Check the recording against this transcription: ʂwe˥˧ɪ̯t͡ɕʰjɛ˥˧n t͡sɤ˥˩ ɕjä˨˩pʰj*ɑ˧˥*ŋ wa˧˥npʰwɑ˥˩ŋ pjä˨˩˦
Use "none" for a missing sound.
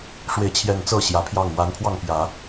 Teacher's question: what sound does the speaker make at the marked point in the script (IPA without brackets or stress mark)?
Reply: ɑ˥˩